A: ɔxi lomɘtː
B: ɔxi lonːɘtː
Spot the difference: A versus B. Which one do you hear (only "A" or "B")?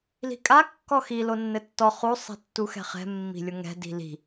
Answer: B